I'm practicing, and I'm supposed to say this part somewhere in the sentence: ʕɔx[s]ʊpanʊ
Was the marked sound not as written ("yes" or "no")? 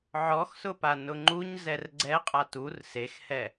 no